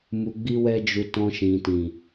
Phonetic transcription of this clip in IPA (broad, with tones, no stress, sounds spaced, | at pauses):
m u˧ ɡ͡b i˦ w ɛ˦ d͡ʒ u˧ t ɔ̃˧ ʃ ĩ˨ t ĩ˨